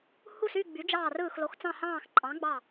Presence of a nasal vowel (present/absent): present